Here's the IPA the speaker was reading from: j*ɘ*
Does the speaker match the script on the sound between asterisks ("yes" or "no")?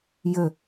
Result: yes